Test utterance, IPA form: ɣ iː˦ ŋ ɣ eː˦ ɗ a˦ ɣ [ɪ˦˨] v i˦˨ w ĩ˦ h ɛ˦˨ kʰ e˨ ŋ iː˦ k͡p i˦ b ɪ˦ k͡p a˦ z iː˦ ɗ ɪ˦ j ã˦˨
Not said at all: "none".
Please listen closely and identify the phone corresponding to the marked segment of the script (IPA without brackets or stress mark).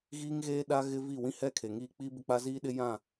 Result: ɪ˦